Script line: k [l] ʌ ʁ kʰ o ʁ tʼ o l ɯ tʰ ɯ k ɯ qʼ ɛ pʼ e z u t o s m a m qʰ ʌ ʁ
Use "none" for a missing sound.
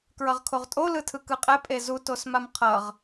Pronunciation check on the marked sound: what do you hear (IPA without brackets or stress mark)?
ɹ